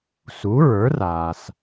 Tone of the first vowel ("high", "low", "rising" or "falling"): rising